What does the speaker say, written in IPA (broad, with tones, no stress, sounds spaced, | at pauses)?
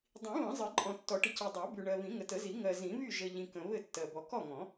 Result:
dˤ ĩ˨˩˦ β ə̃˨˩˦ zˤ ɘ˨˩˦ ǃʼ ɔ̃˨ tː ɔ˨˩˦ ʈ ə˨ c i˨ dˤ ɜ˨˩˦ b y˨ ɳ ɜ˨ β ĩ˨˩˦ ŋ ə˨ t ə˨˩˦ z i˨˩˦ ŋ ɜ˨ z ĩ˨˩˦ β y˥˨ ʒ ə˨ ʎ ĩ˨ k ə̃˨ β ɘ˥˨ tː ɜ˨ b ɔ˨ k ɔ˥˨ ŋ ɔ̃˨˩˦